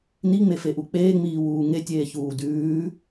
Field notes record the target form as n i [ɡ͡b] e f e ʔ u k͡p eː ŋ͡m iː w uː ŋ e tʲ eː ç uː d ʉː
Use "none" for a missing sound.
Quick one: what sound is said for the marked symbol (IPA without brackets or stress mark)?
ŋ͡m